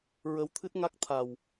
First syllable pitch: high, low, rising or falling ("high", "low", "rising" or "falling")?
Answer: rising